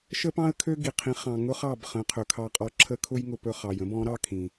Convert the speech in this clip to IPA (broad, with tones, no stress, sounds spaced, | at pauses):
ʃ ə˥ p ɑ̃˥ ə̯ kʰ ø˥ ɡ i˩ qʰ ĩ˩˥ χ ɑ̃˩ ŋ ʊ˥ χ ɑ˥˩ b χ ə̃˩˥ qʰ ɵ˩ kʰ ɑ˧ qʼ ɔ˧ ǁʰ ə˥ kʰ ʊ˥ j ŋ ʊ˧ p ɵ˧ χ ɑ˩ j ə̃˥ b ɔ̃˩˥ ɾ ɑ˥ kʰ ĩ˩